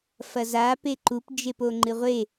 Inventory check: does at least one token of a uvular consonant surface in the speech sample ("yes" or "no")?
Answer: yes